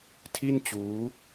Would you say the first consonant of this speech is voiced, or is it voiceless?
voiceless